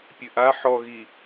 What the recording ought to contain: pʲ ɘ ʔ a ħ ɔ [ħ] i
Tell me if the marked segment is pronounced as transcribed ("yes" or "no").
no